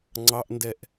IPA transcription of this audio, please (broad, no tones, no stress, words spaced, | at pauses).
ŋ͡ǀɑʔndɛʔ